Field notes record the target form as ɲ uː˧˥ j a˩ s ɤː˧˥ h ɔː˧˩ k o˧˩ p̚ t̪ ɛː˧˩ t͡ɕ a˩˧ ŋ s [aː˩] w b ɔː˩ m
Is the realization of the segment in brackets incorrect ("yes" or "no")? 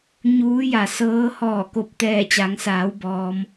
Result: yes